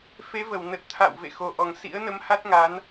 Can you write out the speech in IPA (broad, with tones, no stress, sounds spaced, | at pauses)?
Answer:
f e˨˦ v ə˧˩ w n ə˨˩ t̚ t̪ʰ a̰˧˨ w v ḛ˧˨ x o˨˩ ʔ ɔ˨˩ ŋ s ḭ˧˥ ə̯ n ə˨˦ m h a˦˥ t̚ ŋ a˨˦ n